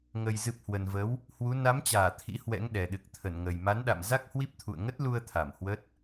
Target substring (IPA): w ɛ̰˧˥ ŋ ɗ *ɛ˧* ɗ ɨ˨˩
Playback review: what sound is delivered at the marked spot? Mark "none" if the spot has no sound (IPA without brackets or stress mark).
ɛ˨˩